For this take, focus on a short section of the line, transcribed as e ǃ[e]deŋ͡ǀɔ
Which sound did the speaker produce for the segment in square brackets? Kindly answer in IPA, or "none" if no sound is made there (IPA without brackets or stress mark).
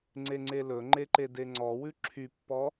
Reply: e